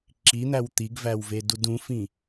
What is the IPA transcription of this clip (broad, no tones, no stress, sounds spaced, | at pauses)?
ǁ i n̪ æ w t̪ i ɡ v æ w v e d u d ũ f ĩ